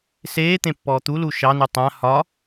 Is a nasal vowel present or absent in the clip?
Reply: present